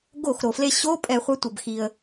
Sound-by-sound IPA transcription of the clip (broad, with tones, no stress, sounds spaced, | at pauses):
ɡ o˧˩˧ x ɾ o˩ f l e˧˩ ɕ o˧˥˧ pʼ ɛ˧˩˧ χʷ ɛ˨˦ tʷ ʌ˩ b x i˩ ə̯